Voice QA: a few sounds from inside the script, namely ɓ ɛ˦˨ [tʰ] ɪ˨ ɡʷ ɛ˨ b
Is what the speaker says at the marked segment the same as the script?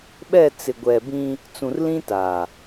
no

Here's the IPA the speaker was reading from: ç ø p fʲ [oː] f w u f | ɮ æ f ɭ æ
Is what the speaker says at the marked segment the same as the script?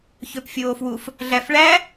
yes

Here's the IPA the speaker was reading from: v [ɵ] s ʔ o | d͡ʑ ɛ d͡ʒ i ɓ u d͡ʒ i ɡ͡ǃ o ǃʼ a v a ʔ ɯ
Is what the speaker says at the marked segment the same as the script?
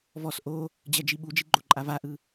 no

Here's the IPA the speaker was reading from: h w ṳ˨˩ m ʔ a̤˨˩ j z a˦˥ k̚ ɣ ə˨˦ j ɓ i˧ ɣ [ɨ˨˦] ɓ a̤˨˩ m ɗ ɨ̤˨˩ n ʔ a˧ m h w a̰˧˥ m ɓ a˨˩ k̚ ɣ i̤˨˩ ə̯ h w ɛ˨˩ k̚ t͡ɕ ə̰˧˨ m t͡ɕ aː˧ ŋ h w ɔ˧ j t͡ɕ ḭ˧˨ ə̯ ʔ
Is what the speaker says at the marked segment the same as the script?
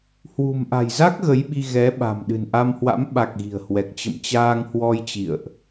no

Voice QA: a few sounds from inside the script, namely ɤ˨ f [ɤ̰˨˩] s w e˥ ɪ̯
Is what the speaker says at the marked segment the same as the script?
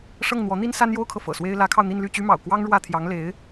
yes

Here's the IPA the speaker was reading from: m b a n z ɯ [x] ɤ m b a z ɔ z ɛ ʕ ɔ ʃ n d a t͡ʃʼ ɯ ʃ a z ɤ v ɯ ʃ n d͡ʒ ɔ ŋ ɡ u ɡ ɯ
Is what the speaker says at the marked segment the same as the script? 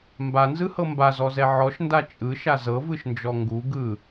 no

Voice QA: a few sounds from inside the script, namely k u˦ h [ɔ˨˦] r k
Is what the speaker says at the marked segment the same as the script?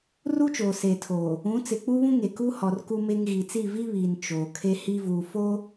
no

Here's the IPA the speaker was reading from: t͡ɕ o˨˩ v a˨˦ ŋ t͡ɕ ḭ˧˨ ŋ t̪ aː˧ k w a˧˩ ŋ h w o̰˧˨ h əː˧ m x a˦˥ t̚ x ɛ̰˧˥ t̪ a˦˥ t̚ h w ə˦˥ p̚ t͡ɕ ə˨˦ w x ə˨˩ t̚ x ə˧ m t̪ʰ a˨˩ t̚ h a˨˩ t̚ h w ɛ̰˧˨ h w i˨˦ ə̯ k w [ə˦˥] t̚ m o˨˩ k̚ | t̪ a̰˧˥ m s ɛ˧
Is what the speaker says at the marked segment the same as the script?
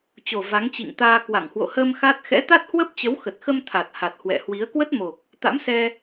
yes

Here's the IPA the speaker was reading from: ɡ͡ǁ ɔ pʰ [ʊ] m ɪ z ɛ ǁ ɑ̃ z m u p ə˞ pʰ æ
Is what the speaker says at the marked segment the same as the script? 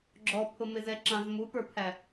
yes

